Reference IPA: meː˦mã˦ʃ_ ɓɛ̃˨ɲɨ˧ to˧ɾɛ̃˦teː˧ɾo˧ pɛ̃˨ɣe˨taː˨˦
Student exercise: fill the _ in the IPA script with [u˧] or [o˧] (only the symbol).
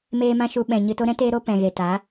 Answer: u˧